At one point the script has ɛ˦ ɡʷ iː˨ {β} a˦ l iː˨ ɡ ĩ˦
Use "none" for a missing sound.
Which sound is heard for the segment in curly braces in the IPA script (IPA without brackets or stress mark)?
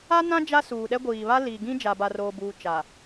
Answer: β